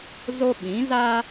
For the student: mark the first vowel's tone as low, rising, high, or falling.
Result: high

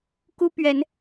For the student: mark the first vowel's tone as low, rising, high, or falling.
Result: high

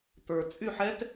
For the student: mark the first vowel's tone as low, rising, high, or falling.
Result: low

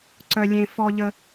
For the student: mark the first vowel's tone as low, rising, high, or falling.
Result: high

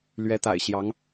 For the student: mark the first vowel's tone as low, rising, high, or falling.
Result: rising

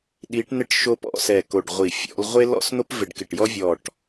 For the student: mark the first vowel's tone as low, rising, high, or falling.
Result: rising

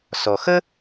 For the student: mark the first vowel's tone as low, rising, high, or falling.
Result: low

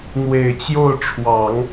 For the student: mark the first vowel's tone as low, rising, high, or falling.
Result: low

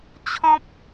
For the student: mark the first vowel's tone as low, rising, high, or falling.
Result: high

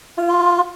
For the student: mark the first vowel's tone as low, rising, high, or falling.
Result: high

